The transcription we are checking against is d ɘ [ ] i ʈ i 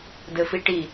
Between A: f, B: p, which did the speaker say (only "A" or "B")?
A